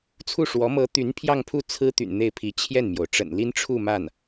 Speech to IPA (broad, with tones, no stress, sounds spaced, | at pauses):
t͡sʰ u˥˩ ʂ w ɔ˧˥ m ɤ˧˥ t̪ y˧˥ n pʰ j ɑ˥˧ ŋ pʰ u˥˩ t͡sʰ ɹ̩˥ t̪ y̰˨˩ n n̪ e˥˩ ɪ̯ pʰ i˧˥ t͡ɕʰ j ɛ˥˩ n m j o˩ ʊ̯ ʈ͡ʂ ə̰˨˩ n l i˥ n ʈ͡ʂʰ u˥˧ m a˥˩ n